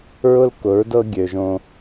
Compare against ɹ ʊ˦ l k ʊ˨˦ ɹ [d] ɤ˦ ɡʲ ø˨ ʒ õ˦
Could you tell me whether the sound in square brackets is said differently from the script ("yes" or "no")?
no